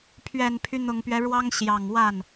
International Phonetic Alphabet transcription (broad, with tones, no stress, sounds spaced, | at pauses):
pʰ ɥ ɛ˨˩ n pʰ y˦ n̪ ʊ˨˩ ŋ p ɥ ɛ˦ ɻ w ɑ˥ ŋ ɕ j ɑ˨˩ ŋ w a˥˩ n